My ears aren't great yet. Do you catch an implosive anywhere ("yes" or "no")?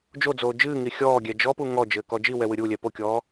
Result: no